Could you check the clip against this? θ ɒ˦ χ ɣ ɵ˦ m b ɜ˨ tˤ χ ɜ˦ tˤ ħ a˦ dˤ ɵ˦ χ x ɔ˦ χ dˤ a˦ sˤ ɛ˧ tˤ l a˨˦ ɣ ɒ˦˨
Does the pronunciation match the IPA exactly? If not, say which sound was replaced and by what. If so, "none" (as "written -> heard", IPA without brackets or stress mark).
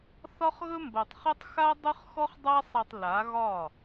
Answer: ħ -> x